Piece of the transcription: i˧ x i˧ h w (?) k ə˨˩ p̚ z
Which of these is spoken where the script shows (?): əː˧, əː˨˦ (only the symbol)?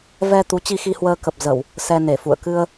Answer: əː˧